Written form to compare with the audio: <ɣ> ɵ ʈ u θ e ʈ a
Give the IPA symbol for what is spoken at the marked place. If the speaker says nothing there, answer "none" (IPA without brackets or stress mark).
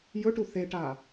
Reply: j